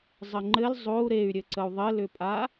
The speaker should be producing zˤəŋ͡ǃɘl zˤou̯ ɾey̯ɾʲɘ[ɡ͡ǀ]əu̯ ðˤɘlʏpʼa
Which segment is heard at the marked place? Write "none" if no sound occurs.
ǀ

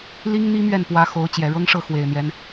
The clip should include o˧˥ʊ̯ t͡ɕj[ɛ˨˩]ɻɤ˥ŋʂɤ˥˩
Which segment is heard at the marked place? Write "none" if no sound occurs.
ɛ˨˩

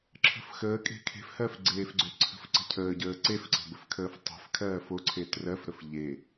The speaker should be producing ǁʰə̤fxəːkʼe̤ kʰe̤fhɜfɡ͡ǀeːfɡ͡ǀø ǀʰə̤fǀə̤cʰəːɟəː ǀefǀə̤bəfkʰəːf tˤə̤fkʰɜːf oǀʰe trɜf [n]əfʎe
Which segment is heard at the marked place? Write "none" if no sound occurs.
ɾ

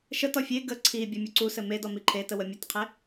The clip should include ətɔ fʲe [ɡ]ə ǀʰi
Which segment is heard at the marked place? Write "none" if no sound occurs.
ɡ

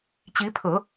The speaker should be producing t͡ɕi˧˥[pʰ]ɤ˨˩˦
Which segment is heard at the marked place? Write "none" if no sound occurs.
pʰ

